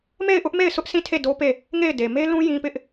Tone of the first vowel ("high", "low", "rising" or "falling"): falling